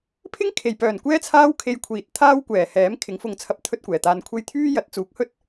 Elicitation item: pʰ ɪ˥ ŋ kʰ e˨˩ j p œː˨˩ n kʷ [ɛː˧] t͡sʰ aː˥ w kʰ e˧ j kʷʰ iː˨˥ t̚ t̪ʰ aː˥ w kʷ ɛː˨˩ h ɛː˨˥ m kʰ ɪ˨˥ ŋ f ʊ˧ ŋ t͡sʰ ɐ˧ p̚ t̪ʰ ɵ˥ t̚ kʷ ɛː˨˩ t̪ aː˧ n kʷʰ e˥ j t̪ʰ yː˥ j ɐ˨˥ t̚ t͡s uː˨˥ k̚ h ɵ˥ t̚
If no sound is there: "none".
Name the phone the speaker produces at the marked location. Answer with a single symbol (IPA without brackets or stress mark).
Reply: ɛː˥